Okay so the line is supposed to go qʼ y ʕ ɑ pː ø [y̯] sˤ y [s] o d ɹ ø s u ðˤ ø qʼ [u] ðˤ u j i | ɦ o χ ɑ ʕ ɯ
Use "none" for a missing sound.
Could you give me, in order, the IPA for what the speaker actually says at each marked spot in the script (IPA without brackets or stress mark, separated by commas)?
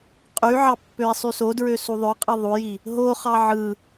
i̯, s, ɯ